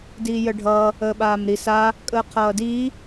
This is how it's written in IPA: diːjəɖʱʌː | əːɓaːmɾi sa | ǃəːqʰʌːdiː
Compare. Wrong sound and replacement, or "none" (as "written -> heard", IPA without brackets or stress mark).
ǃ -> kʼ